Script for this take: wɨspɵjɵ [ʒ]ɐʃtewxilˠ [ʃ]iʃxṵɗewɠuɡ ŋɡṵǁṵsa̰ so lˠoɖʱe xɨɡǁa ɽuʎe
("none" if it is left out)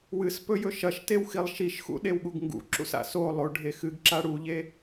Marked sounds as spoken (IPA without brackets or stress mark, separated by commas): ʃ, ʃ